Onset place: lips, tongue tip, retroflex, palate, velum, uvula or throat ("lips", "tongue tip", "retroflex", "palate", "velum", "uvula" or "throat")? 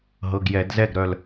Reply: throat